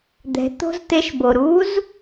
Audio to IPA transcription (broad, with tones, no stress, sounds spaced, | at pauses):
d̪ ɛ̤˩˧ t̪ o̤˥ z t̪ e˧˥ ʃ b o˩ ɾ u˧˥ z